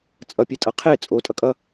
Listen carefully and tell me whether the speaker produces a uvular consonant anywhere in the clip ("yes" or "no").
yes